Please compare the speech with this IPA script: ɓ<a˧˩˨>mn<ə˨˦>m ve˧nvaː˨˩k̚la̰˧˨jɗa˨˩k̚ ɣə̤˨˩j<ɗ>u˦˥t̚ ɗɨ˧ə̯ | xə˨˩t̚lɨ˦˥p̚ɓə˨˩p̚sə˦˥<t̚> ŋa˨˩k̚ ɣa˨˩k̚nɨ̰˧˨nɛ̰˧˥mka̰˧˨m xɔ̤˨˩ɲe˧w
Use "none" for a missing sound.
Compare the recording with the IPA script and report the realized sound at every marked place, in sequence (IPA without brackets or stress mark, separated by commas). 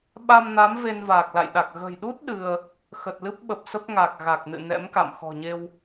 a˧, a˨˦, ɗ, p̚